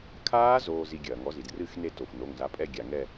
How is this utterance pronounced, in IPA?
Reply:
kʰ aː˦˥ z oː˧ z i˧ ɡʲ ɐː˩ ŋ ɔ˨˥ z i˩ d r ɨ˥˧ x n e˥˧ t o˩ f n o˩˧˩ ŋ z a˨˥ pʼ ɛ˥˧ ɡʲ a˩ ŋ ɛ˥˧

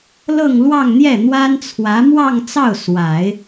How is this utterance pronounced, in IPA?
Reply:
l ɤ˥˧ ŋ l w ɑ˥˧ ŋ n̪ j ɛ˥˩ n̪ w a˥ n t͡sʰ w ä˧˥ m w ɑ˥˧ ŋ t͡s ɑ˥˩ ʊ̯ s w a˨˩˦ ɪ̯

